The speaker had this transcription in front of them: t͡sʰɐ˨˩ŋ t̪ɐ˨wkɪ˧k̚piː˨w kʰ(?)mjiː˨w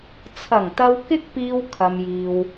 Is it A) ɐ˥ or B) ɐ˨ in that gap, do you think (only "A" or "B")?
B